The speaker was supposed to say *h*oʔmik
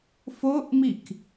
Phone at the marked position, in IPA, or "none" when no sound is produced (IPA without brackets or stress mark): f